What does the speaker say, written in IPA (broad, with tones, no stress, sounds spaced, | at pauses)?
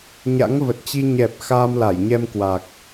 ɲ a̰˧˥ ŋ v ə˨˩ t̚ t͡ɕ i˧ ɲ ɛ˨˩ p̚ x aː˧ m l a˧˩ j ɲ ɛ˧ m k w aː˨˩ k̚